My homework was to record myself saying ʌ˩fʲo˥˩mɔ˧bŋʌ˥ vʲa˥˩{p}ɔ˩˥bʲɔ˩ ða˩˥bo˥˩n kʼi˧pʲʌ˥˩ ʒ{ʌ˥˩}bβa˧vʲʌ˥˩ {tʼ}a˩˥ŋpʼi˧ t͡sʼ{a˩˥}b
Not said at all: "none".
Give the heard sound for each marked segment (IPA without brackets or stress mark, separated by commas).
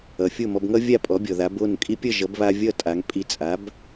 pʼ, ʌ˩˥, tʼ, a˩˥